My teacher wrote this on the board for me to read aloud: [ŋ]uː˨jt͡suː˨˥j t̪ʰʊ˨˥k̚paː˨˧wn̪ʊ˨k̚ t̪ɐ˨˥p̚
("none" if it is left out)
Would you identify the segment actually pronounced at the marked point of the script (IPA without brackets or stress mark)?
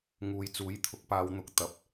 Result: ŋ